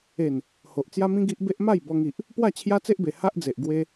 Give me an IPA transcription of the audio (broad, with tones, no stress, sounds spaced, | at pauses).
e˨˩ n | h o˨ ʔ t͡s j a˦ m ĩ˦ ɡ i˦ ʔ b e˦ ʔ m a˥˧ j b ɔ˧ ŋ i˨ ʔ | p w a˥˧ t͡ɕʰ j a˦ t͡s e˦ ʔ b e˨˩ h a˦ ʔ d͡z e˨ ʔ ɡ w e˧